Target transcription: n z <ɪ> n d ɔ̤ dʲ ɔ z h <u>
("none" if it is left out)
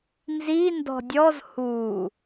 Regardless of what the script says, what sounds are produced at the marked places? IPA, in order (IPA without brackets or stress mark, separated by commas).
i, u